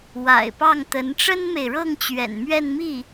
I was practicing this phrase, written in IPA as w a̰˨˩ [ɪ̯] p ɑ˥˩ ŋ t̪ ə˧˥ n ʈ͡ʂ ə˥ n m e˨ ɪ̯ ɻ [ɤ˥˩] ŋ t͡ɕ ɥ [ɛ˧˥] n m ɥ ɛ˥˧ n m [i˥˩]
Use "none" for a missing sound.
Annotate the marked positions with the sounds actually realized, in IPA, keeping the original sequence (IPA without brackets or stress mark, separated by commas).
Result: ɪ̯, ɤ˥˩, ɛ̰˨˩, i˥˩